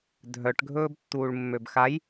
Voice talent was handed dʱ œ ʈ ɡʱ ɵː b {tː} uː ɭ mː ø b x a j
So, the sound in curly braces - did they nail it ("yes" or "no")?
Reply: yes